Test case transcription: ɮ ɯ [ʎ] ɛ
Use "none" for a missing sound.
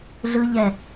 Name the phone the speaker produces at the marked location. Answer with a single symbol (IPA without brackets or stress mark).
ʎ